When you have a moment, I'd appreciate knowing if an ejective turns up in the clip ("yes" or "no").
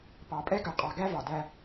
yes